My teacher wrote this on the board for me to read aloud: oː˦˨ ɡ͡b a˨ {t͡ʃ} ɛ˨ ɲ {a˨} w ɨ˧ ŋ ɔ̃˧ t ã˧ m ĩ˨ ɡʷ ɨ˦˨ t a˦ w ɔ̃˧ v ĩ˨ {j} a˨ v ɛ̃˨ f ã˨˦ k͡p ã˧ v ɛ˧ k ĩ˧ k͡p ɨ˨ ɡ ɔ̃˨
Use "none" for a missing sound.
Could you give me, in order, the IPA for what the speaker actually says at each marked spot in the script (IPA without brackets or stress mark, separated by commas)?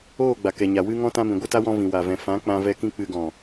k, a˨, w